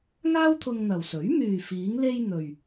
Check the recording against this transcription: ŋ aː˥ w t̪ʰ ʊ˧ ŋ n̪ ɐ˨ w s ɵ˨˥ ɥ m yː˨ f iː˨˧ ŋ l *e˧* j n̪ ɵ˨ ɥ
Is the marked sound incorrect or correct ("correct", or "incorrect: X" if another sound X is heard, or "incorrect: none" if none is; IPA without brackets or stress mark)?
correct